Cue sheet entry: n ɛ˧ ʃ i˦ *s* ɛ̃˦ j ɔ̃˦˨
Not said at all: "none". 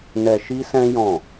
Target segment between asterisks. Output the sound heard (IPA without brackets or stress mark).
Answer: s